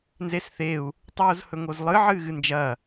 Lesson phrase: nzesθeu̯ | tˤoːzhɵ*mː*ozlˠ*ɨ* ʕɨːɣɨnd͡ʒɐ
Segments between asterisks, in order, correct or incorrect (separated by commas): incorrect, correct